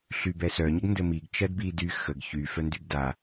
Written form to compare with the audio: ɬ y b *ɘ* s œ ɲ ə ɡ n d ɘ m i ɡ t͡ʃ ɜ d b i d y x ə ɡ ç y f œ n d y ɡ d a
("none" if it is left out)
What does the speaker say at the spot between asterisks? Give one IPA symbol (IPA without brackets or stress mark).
ɛ